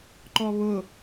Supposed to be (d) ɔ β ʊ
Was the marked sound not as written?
yes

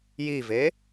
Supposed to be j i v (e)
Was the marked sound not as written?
no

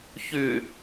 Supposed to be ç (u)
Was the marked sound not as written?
yes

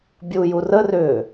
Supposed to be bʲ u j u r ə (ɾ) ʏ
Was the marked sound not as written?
yes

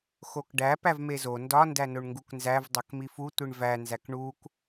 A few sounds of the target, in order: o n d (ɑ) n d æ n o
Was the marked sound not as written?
yes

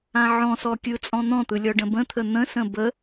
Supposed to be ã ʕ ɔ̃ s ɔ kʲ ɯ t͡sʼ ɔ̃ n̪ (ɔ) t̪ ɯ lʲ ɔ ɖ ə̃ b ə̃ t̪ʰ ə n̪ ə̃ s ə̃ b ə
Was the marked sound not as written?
yes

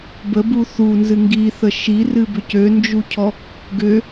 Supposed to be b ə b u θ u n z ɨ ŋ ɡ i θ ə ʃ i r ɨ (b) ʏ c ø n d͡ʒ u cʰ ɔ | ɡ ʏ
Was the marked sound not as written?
no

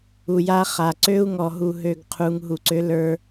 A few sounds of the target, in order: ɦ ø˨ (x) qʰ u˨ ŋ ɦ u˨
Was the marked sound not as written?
yes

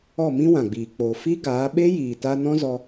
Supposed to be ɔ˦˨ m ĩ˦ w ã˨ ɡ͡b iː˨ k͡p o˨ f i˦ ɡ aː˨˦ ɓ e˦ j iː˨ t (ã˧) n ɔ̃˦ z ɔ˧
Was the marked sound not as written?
yes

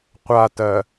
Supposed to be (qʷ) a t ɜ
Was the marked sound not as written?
no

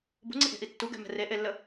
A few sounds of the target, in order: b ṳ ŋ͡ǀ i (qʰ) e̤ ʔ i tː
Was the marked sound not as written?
yes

